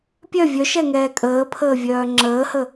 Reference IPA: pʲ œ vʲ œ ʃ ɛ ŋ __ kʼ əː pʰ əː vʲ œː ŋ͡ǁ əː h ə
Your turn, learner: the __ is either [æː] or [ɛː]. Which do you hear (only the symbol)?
ɛː